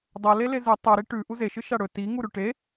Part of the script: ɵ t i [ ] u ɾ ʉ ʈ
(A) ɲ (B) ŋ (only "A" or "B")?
B